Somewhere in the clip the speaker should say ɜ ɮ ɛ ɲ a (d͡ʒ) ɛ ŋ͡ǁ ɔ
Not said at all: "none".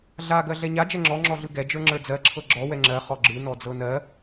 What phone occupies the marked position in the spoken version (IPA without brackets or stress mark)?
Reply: d͡ʒ